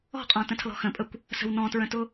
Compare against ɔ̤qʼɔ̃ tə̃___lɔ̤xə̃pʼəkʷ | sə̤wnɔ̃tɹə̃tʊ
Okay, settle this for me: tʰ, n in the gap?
tʰ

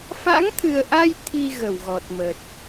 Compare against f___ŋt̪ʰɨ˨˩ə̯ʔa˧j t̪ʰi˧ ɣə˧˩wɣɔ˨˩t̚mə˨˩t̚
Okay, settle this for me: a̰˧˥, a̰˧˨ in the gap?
a̰˧˥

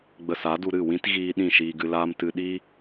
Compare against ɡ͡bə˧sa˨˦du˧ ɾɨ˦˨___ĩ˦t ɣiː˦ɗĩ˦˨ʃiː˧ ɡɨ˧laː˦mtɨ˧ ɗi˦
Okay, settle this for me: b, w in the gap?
w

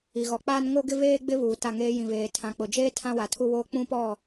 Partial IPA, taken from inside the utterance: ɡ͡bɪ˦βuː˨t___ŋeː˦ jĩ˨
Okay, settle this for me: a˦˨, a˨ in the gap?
a˦˨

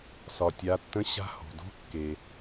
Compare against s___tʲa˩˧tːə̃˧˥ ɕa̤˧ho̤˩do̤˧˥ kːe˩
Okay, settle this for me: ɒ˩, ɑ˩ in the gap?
ɒ˩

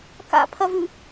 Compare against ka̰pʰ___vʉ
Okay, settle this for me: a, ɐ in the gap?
ɐ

